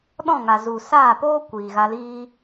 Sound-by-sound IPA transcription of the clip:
ɗ ɔ̃˦˨ ŋ a˨ z u˨ s aː˦˨ p oː˦ kʷ iː˨ ɣ a˧ l iː˦

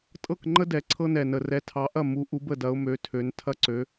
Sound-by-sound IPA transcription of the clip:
tʼ ɤ˥˩ k ŋ͡ǃ ə˦ d ɛ˨˩ ǀʰ ɤ˦ n ɛ˨˩ n ə˨˩ r ɛ˨˦ tʰ ɑ˨˦ ʔ ɐ˥˩ m u˨˦ ʔ u˨˦ b ə˥˩ d ɐ˨˦ ʊ̯ m ø˨˦ tʰ ø˨˦ n tʰ ɐ˦ ǀ ø˨˦

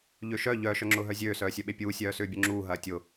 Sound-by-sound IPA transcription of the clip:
ʎ ø ʃ œ ʎ œ ʃ œ ŋ͡ǁ ʊː ɦ œ zʲ øː s œː sʲ œ ɓ e pʲ uː sʲ œː s ʏː bʲ ʊ ŋ͡ǁ uː ɦ ɐː tʲ ʊ

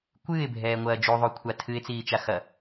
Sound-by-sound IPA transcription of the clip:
kʷ ɨː ɪ̯ bʱ ɛː ŋʷ ɐː d͡ʒ u ðˤ u kʷʰ a tʰ ɨ ɪ̯ t͡s iː t͡ʃ a x ɐ

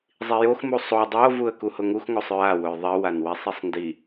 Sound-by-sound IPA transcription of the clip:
zˤ i j o x m u sˤ o dˤ o v u ə̯ k u h ʊ ŋ u x ŋ o sˤ ɹ a w ʊ j ðˤ i w a n w i sˤ i sˤ n d i

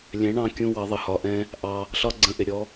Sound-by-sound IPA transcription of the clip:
lʲ ɛ̃˨˦ ɳ ɑ̃˧ kʲ ũ˦ w ɑ˨˦ ðˤ ə˨ h ɒ˧ ʔ ɛ̃˦ | ʔ ɑ˧ | ɬ ɒ˦ ɡ͡ǀ ə̃˧ ʔ ɪ˨ ɾʲ ɔ˦

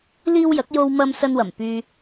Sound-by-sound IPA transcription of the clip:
l iː˥ w j ɐ˨˥ k̚ j o˧ w m ɐ˧ m s ɐ˧ n w ɐ˨˩ m p yː˨

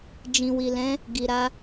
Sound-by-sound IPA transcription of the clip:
d͡ʒ ĩ˨ w i˨ l ɛ̃˨˦ | ɡ i˨ ɾ a˧

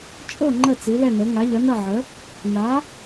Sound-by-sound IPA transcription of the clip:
t͡ʃʼ ɤ˥˩ ŋ͡ǃ ə˥˩ t͡s i˩˥ l ɛ˥˩ n ɤ˩˥ ŋ a˩˥ ʎ ʌ˩˥ n ʌ˥˩ ʕ ə˩˥ | n a˩˥

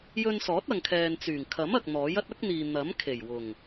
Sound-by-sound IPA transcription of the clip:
j ɵ˧ n s ɔː˨˥ t̚ ɐ˨ ŋ kʰ ɛː˨ n t͡s yː˨˩ ŋ kʰ ɐ˨˥ m ɐ˨ k̚ n̪ ɔː˨˥ j ɐ˥ t̚ ɐ˥ k̚ n̪ iː˨ n̪ ɐ˨˥ m kʰ e˨˩ j w ʊ˨˩ ŋ

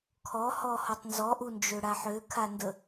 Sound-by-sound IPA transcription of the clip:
kʰ ɔ h ɔ h ɔ tˤ n z ɔ ʔ u n d͡ʒ ø ɽ a ħ ø kʰ a n d ə

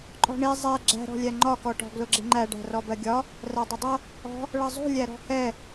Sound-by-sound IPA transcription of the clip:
ǃʼ ɔ̤ ɳ i zˤ ɛ ɡ͡ǁ æ̤ ɾ ɔ̤ lʲ æ ŋ͡ǃ ɒ k ɔ ʈ ɔ̤ ɡ l ʊ ɡ͡ǁ ɪ ŋ͡ǃ æ ɖ æ̤ r ɔ b ɜ ɡʲ ɒ | r æ dˤ ʊ dˤ ʌ | ɔ̤ | ɭ ʌ zˤ ṳ lʲ æ ɾ ɔ̤ h ɛ

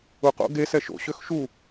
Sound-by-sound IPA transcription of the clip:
u q o̰ ɡ e s ɛ ʃ o̰ ɕ ø x ʃ u

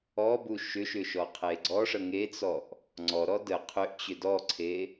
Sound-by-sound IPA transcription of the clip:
ɔ b u ʃ ʏ ʃ ʏ ʃ ɔ qʰ e ɡ͡ǀ ɔ ʂ ə ŋ e t͡s ɔ ʔ | ŋ͡ǀ ɔ ɾ ɔ d ə qʰ ʏ ʔ t͡ɕ ʏ d ɔ ǀʰ e

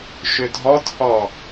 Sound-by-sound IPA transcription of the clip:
ʃ ʏ dʱ ɔ t h ɔ

